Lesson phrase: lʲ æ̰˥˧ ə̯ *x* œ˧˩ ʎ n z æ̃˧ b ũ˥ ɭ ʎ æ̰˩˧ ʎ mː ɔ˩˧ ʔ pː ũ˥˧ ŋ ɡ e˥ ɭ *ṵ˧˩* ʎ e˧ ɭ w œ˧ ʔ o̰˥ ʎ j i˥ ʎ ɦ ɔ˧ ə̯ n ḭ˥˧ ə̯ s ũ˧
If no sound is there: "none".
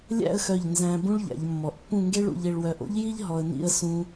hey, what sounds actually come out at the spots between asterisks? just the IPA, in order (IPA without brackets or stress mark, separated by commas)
x, ṵ˧